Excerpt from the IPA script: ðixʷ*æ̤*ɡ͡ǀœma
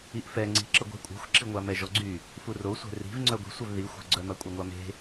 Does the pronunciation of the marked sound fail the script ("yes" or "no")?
yes